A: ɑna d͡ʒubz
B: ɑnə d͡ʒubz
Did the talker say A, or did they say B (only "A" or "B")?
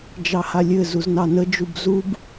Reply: B